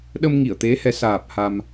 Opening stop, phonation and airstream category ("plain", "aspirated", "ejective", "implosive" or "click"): implosive